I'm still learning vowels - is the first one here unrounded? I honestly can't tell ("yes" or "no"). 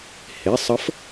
yes